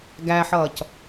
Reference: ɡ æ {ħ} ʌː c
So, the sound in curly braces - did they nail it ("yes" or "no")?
yes